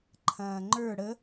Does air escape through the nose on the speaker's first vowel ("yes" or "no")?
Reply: yes